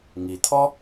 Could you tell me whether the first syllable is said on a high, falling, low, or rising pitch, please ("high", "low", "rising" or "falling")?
low